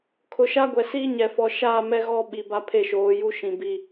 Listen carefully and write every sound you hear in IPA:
kʰ ʊ˨ ʃ a˦ ɡʷ ɛ˨ s iː˦ ɲ ɛ˨ f ɔ˨ ʃ aː˦˨ m ɛ˦ ɣ ɔ˦ ɓ i˨ b a˦ pʰ e˦˨ ʃ oː˨˦ j u˦ ʃ ĩ˨ b i˨

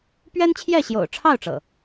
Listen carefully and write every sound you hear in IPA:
p ɥ ɛ˦ n t͡ɕʰ j ɛ˥˨ ɕ j o̰˨˩ ʊ̯ ʈ͡ʂʰ ɑ˥˨ ʊ̯ ʈ͡ʂ ɤ̰˨˩

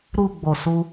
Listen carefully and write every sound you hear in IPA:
ɾ u˨ ɡ͡b o˨ s u˧

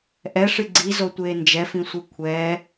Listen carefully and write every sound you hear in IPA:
ʔ ɛ ʂ ɨ ɡ͡ǀ i z o tʷ eː n d͡ʒ ɛ f ĩ sʷ ɨ kʷʰ ɛː

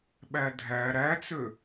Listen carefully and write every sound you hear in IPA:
ɓ æ dʱ æ ɾ æ t͡s ø

